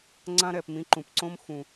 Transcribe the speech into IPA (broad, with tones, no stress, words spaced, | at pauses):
ŋ͡ǀã˦ɾɛ˨pmĩ˧ ǃũ˨pǀõ˦m xũ˨